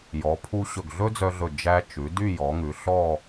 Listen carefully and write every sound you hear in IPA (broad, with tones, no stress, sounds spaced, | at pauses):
j ɔ˩˧ pʰ u˧ ɕ ɵ˧˩ ɡ ɮ ɵ˥ d͡z œ˧ ɮ ɵ˧˩ d͡ʒ æ˧ t͡ʃ ʉ˩˧ d y˥˧ j ɔ˩˧ ŋ ʉ˩˧ ɬ ɔ˥˧